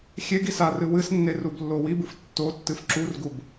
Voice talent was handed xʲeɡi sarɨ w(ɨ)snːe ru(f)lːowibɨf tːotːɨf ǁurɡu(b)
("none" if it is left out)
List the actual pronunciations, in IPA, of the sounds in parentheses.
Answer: ɨ, b, b

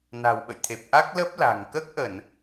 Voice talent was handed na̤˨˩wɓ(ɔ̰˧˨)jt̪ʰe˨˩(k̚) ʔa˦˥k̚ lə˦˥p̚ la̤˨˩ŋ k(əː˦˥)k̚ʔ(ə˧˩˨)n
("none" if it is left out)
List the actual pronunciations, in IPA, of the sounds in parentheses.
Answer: ə̰˧˨, p̚, əː˦˥, ə˧˩˨

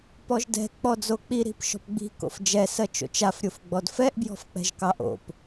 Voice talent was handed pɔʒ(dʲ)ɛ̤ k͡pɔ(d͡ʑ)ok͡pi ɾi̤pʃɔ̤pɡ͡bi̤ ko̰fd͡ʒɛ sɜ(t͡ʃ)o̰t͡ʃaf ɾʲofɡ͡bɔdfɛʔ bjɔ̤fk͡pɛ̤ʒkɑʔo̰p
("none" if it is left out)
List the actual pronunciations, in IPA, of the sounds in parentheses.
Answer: d, d͡z, t͡ʃ

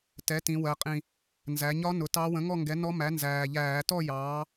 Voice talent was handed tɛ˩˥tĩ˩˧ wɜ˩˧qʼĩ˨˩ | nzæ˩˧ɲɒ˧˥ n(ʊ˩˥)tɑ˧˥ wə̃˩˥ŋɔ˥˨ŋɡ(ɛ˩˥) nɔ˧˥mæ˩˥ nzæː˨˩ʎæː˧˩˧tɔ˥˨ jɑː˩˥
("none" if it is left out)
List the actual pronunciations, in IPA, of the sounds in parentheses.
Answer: ʊ˩˥, ɛ˩˥

